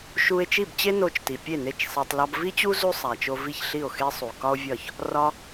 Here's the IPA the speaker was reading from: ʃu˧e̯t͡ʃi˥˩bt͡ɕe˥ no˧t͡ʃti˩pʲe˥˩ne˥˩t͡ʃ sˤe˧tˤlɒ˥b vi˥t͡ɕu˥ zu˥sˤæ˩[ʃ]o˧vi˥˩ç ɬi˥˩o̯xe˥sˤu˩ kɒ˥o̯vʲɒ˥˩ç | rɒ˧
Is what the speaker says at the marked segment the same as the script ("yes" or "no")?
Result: no